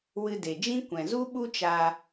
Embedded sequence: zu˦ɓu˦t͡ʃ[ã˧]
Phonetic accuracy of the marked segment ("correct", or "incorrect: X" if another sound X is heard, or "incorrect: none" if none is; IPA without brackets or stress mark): incorrect: a˧